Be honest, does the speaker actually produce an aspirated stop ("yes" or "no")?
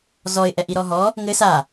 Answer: no